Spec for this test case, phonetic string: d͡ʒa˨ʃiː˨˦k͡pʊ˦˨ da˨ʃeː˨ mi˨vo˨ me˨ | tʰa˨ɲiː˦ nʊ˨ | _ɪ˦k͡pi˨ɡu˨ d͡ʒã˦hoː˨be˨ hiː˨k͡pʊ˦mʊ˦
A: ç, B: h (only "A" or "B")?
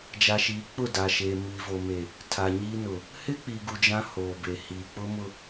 B